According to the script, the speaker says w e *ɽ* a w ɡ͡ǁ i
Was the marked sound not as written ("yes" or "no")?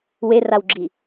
yes